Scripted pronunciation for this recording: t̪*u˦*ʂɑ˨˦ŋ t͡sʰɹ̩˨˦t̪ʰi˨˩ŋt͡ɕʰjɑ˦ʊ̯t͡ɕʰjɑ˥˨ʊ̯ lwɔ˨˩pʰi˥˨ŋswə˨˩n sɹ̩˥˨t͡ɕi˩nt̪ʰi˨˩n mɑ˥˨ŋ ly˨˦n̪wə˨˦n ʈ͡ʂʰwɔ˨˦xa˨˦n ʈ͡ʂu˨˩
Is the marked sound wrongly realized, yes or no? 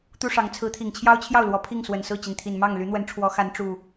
no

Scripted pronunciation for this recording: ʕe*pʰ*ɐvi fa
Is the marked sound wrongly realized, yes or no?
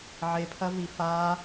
no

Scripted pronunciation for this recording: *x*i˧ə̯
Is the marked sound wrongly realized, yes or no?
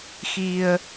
no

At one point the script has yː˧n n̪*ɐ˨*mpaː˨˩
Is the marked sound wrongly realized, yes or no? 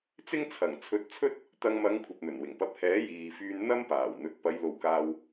yes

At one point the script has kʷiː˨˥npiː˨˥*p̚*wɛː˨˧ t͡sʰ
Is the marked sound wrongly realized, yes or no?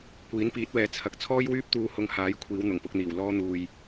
yes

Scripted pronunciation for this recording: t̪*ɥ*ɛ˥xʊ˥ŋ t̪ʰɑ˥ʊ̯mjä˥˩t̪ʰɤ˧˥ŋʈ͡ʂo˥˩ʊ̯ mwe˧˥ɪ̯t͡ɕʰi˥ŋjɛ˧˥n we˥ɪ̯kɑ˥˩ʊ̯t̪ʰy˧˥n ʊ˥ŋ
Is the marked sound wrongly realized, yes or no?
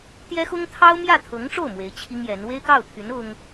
yes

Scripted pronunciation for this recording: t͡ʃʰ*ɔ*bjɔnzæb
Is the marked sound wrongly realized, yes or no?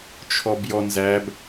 no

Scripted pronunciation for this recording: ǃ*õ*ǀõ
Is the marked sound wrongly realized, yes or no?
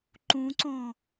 yes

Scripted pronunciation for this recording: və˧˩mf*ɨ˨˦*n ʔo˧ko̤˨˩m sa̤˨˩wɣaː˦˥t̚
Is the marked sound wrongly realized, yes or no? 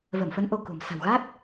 yes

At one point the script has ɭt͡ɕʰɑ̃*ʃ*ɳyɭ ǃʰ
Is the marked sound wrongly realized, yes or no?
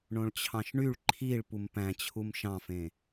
no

